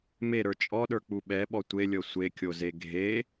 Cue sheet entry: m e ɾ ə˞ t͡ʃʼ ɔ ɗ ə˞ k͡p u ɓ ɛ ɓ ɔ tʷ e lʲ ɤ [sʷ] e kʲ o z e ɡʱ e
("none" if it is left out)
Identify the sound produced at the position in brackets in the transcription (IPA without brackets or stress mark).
sʷ